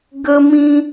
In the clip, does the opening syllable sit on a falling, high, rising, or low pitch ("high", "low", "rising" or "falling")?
high